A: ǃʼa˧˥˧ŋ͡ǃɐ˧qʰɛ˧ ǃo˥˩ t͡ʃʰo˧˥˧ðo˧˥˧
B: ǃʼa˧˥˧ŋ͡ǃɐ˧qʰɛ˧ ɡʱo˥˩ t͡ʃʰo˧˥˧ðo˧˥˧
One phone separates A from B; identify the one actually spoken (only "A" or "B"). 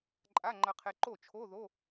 A